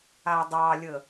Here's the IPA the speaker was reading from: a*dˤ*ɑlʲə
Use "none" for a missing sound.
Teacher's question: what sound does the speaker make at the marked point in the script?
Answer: dˤ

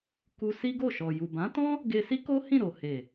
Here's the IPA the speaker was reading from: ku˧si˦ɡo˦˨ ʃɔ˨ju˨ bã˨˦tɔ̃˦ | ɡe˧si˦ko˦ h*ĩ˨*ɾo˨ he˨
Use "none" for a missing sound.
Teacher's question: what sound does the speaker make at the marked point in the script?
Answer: ĩ˦˨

